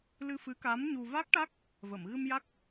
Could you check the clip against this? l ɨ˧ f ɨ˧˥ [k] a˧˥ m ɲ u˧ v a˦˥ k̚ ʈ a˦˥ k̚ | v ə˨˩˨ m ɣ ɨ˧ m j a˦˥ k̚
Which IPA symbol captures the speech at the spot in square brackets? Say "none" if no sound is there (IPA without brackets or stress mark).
k